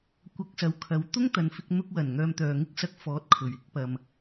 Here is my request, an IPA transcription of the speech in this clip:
kʷ ɐ˧ k̚ s ɐ˨ w kʰ ɐ˨ w t̪ ʊ˥ ŋ t̪ ɐ˨ n f ɪ˧ k̚ n̪ ʊ˧ k̚ w ɐ˨˩ n ŋ œː˧ m t̪ œː˨ ŋ ɪ˥ k̚ s ɐ˧ k̚ f ɔː˨˥ t̚ kʰ ɵ˨˩ ɥ ɪ˨˥ k̚ p ɐ˨ m

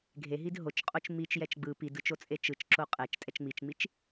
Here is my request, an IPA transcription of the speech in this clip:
ɡʱ e ɦ i d ɦ o t͡ʃ qʼ o t͡ʃ m i t͡ʃ j ɛ t͡ʃ ɡ͡b ɯ p i d ɯ t͡ʃ o t͡sʼ e t͡ʃ ɯ t͡ʃ ǁ o qʼ ɛ t͡ʃ tʼ ɛ t͡ʃ ŋ͡m i t͡ʃ ŋ͡m i t͡ʃ

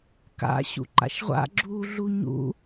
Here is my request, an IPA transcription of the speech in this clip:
k a̰ ɕ ṵ ǃ a̰ ʃ ʁʷ a̰ ɡ͡ǁ uː ɮ u ɲ ṵ

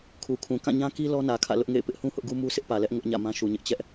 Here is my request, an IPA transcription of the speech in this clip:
kʰ u˨ kʰ ũ˨ k ã˦˨ ɲ ã˦ k i˦ l ɔ˦ n ä˨ kʰ ä̰˦˨ l ʊ˦ ʔ ŋ ḛ˦˨ ɪ̯ p ɪ˦ ʔ h ũ˦ h ʊ˦ ʔ ɡ u˦ m u˦ s ɪ˦ ʔ p ä˨ l ɛ˦ ʔ ŋ ʊ˦ ʔ ɲ ä̰˦˨ m ã˦ ʃ u˨ ɲ ɪ˦ ʔ t͡ɕ ɛ˦ ʔ

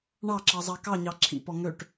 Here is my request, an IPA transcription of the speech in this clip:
ɳ ɑ ǁ ɑ zˤ ɑ k ɑ ɲ ɑ ǁʰ ḭ p ɔ ŋ ø ʈ

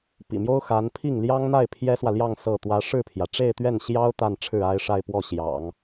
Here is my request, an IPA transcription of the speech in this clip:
p ḭ˨˩ m j o˥ ʊ̯ x a˧˥ n pʰ i˥˩ ŋ l j ɑ˥ ŋ n̪ a˥˩ ɪ̯ pʰ j ɛ˥ s w ä˨ l j ɑ˥˧ ŋ s ɤ˥˩ t̪ w ä˥ ʂ ɻ̩˥˩ pʰ j ä˩ ʈ͡ʂ e˥˧ ɪ̯ t̪ ɥ ɛ˥˩ n ɕ j ɑ˥ ʊ̯ t̪ a˥˧ n ʈ͡ʂʰ ɻ̩˥˩ a˥ ɪ̯ ʂ a˥˧ ɪ̯ p w ɔ˥˩ ɕ j ɑ̰˨˩˦ ŋ

